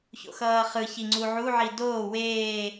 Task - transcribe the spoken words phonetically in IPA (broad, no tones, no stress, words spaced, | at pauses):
ço̰xʌːχɯçi ŋ͡ǀuʕuʕi doː weː